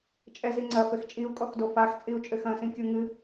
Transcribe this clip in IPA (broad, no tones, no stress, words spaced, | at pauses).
t͡ʃʼɛziŋ͡ǀɐ fɘxt͡ʃʼiu̯kʼɔxdo faxt͡sʼiu̯ t͡ʃʼɘxɐ̃sĩ kʲuŋɨ